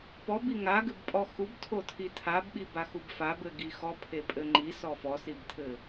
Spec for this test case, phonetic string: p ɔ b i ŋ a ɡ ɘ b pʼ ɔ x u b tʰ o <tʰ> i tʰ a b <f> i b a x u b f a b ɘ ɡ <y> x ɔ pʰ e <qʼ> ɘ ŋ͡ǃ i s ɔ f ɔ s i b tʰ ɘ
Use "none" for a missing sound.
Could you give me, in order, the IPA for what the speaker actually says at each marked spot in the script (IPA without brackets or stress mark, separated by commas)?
tʰ, ɓ, i, pʼ